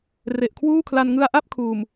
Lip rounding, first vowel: unrounded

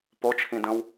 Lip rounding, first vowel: rounded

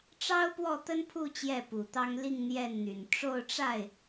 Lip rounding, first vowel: unrounded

